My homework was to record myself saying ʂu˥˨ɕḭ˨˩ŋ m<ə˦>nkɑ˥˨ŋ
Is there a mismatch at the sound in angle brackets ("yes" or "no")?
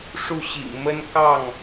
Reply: no